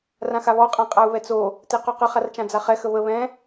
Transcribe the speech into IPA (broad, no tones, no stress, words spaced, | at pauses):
rãxaβɔ qʼãqʼau̯βɛt͡so | teqɔqə χart͡ʃãd͡zaχɛ xəβə βɛ̃